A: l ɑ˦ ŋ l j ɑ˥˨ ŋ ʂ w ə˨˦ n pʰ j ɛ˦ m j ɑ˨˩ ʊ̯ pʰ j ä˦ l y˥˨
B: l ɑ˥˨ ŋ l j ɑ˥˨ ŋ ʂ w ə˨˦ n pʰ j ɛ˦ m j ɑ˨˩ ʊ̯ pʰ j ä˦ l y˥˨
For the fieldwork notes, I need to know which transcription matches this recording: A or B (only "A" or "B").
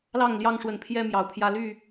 B